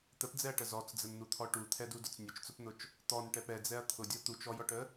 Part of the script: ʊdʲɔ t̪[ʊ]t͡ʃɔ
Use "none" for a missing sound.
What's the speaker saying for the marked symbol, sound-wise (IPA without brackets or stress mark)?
u